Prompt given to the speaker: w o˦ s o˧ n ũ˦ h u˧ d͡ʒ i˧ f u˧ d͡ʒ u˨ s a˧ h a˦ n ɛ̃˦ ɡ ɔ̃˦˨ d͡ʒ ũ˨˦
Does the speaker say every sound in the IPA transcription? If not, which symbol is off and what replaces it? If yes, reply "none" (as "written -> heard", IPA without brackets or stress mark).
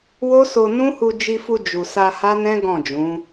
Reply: none